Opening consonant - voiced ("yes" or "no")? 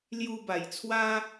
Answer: yes